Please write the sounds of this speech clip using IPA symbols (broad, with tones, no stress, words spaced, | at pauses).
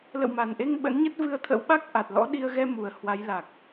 lə̰˧˨wma˨˩nʔe˧ŋ ɓə̰˧˥nɲə˦˥t̚vɨ˧ə̯ t̪ʰə̰˧˥w ɓa˦˥k̚ ʔa˨˩t̚lɔ̰˧˥ɗi˧ə̯ ɣɛ˧mu˨˩ə̯ hwa˨˦jla˨˩k̚